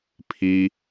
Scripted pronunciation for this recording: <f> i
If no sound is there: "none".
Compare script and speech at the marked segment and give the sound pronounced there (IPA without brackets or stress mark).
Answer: pʰ